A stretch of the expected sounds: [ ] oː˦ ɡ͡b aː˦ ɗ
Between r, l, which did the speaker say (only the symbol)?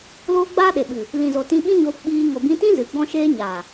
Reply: l